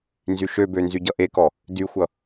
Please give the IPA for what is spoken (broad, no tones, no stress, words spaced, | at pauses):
nzyʃøbø nzyɟʌʔekɔ | dyxʷʌ